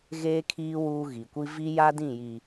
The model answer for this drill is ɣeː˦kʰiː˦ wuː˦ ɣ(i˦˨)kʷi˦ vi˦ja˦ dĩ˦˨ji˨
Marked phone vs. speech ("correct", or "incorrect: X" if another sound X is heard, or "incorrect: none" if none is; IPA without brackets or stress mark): incorrect: i˨